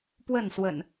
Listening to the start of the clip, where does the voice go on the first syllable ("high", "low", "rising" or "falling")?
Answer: falling